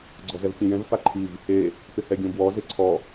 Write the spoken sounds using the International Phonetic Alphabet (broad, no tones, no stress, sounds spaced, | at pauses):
ɡ͡ǀ ɔ z ɛ v kʲ ẽ j ɛ̃ v f a ǃʰ i v | e | p ɪ h ɛ ɡʲ õ b w ɔ z ɪ ǀʰ ɔ